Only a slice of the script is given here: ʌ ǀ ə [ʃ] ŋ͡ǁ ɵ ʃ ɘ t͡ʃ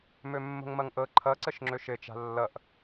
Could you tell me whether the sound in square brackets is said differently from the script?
no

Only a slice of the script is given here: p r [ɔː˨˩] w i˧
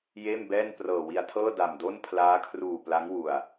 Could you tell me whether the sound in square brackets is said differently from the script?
yes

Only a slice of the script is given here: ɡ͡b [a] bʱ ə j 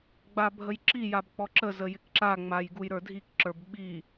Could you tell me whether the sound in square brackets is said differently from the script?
no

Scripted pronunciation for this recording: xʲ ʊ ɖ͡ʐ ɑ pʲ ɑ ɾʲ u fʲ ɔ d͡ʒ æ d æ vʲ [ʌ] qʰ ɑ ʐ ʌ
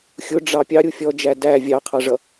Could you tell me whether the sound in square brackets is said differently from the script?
yes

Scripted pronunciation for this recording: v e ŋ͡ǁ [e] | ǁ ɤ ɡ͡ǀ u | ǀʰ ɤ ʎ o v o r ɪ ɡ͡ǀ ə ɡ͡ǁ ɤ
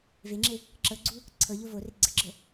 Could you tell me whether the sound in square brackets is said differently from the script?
no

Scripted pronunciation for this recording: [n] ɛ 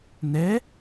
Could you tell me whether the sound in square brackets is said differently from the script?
no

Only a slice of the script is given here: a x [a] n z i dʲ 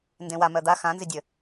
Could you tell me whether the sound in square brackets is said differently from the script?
yes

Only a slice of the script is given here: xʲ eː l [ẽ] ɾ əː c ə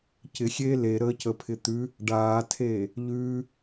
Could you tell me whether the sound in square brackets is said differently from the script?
yes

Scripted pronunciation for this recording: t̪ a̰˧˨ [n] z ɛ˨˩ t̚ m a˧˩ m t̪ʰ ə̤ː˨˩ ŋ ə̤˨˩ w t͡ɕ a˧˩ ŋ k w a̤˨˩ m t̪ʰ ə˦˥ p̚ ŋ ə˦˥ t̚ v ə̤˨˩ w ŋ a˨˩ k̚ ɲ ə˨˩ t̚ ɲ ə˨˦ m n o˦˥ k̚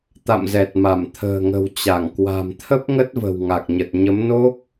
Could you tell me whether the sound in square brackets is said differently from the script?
yes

